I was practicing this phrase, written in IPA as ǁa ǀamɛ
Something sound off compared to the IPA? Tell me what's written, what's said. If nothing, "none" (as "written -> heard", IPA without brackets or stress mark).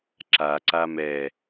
none